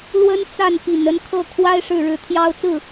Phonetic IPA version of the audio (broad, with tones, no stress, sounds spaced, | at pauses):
l w ə˥ n t͡s a˥˩ n p i˨˩ n ə˥˧ n kʰ ɤ˥˩ kʰ w a˥ ɪ̯ ʂ ɻ̩˥˩ ɻ ɻ̩˧˥ t̪ʰ j ɑ˥ ʊ̯ t͡s ɹ̩˥˩